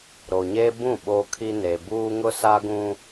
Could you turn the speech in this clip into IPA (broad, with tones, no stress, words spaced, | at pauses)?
ɾo˨ɲeː˦bũ˦˨ ɓoː˦kʰi˦ ne˨buː˦ ŋʊ˦ sa˦ɡũ˦